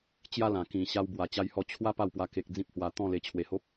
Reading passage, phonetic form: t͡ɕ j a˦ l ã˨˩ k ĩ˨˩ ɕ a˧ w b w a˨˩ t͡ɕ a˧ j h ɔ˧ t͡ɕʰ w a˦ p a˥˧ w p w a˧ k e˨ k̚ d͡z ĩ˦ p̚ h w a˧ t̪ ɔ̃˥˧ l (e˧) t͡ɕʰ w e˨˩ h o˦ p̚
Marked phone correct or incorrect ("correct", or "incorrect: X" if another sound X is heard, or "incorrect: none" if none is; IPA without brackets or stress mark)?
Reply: correct